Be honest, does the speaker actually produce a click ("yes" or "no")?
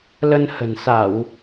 no